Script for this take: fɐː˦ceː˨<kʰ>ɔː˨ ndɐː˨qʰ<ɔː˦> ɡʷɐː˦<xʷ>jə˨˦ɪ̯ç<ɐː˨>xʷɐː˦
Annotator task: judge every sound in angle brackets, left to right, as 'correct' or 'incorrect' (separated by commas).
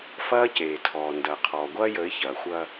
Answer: incorrect, incorrect, incorrect, correct